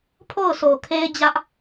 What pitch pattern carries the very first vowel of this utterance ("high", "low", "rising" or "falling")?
falling